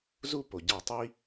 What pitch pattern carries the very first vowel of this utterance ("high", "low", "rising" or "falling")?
high